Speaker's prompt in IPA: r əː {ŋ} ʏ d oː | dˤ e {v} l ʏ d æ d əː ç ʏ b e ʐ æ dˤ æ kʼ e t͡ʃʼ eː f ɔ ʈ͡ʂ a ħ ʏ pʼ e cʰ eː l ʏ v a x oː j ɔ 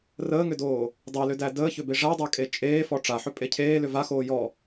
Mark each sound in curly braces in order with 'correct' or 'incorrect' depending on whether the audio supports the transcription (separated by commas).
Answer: correct, incorrect